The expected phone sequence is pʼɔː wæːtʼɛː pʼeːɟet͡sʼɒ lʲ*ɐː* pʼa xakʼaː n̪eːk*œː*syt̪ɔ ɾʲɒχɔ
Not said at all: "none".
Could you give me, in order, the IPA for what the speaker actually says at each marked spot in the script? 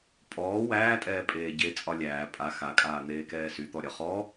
æː, ɛː

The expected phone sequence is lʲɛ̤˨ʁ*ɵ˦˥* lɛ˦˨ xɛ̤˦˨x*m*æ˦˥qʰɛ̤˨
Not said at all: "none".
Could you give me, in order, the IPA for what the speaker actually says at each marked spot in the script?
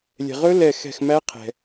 ɵ˦˥, m

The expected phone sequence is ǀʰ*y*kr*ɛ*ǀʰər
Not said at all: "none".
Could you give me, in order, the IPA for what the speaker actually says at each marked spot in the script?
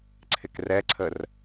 ɪ, ɛ

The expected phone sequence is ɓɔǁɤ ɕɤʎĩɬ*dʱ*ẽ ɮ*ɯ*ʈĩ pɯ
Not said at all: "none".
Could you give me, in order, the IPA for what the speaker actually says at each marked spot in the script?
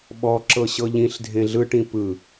dʱ, ɯ

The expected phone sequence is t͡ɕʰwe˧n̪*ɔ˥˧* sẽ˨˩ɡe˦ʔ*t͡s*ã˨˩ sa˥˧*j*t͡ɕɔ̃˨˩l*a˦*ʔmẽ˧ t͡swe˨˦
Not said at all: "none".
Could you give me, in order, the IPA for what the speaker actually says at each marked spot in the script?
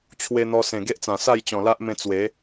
ɔ˧, t͡s, j, a˦

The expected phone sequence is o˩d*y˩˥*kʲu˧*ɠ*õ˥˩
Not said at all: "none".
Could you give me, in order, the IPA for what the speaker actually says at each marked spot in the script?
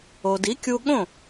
i˩˥, ɠ

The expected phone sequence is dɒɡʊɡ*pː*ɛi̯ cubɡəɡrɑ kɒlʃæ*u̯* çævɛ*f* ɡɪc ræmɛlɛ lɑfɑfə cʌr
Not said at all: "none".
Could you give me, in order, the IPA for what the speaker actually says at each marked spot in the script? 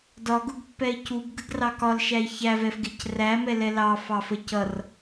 pː, i̯, f

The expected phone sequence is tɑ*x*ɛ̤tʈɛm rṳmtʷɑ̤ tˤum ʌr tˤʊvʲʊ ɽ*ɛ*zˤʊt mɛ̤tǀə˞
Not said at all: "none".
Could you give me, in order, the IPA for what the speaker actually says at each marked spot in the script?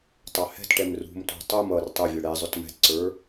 h, ɛ

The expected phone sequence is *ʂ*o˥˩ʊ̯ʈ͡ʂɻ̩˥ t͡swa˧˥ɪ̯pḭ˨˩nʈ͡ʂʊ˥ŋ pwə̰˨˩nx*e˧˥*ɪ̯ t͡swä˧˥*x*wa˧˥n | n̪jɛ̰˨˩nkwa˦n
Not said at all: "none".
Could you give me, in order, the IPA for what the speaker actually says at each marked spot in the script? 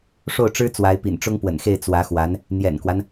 ʂ, e˥˩, x

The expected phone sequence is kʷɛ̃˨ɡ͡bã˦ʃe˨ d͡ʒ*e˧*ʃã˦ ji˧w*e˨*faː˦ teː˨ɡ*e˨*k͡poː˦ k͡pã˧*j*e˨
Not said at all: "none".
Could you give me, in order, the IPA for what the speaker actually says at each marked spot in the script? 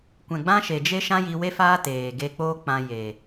e˦, e˦, e˧, j

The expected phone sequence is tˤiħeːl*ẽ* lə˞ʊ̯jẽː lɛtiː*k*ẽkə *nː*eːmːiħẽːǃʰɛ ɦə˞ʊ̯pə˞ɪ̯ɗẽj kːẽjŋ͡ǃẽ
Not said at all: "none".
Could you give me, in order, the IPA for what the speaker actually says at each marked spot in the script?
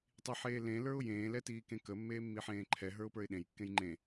ẽ, k, mː

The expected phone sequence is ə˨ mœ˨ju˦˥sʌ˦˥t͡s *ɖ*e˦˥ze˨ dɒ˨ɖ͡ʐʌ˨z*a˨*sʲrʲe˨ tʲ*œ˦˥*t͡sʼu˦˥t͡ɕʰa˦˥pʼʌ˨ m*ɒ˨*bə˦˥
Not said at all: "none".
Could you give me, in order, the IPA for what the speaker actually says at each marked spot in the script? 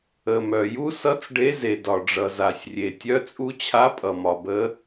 ɖ, a˨, œ˦˥, ɒ˨

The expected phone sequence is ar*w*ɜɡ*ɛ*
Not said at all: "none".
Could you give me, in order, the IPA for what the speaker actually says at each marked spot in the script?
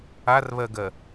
β, ɜ

